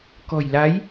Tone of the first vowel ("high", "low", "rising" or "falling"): low